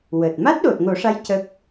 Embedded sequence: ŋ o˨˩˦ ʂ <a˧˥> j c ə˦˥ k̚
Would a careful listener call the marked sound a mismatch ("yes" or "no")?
no